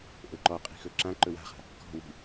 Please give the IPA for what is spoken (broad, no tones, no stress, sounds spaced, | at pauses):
ʔ ɵ ǃ ɔ qʼ i̤ x ɵ ǁ ã ǃ ɵ w a̤ χ a̤ | k ɔ̤ w i̤